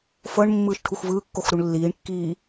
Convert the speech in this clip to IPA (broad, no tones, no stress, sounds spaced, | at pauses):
f ɤ ɳ mː ɯː ʃ ʈʰ u x v ɯː kː o x ɾ u ɳ lː iː ɳ kː iː